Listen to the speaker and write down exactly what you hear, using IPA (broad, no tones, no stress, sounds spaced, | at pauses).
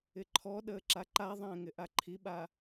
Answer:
ɪ ǃʰ ɔ ɗ əː ǁ a ǃ a ðˤ ɛ̃ː ŋ ɪ ʔ a ǃʰ i ɓ a